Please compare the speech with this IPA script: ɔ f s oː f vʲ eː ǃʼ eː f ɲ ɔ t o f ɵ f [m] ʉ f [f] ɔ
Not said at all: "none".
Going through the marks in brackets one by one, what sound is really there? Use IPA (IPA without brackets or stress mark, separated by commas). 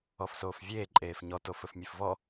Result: mʲ, v